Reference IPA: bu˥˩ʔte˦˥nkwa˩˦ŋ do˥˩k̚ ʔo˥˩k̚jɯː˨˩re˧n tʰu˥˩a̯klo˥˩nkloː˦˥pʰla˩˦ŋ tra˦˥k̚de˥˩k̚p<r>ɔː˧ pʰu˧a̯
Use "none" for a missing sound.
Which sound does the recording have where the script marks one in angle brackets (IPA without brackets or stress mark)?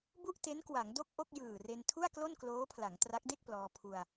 l